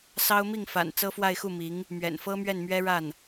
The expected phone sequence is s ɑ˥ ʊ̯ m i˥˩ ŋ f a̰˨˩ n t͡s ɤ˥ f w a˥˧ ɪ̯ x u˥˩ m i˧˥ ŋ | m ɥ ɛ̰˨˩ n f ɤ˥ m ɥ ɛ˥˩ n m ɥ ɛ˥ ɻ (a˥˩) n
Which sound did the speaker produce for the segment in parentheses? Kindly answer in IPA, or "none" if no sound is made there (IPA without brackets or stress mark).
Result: a˥˩